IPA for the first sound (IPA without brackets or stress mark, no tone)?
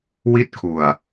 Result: w